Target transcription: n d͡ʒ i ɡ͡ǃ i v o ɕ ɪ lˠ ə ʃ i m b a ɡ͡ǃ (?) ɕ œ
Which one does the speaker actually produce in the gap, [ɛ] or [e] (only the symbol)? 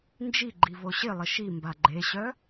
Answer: e